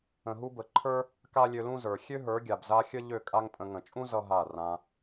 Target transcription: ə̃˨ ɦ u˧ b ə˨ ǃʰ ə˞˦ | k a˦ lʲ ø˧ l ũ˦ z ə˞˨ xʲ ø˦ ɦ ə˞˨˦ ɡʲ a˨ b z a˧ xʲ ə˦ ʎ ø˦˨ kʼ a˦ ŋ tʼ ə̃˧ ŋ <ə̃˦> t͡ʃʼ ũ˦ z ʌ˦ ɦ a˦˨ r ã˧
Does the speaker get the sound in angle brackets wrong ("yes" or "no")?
yes